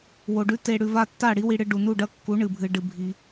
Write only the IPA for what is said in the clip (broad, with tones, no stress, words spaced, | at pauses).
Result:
wo˨ɖʉ˧ te˧ ɽʉ˨va˧ tːa˦˨ɽi˦ wi˦ɽɨ˦ ɖu˨nu˦˨ɖɐ˦ kːu˨˦ ɳɨ˨bʱɨ˧ ɖɨ˦ bʱi˦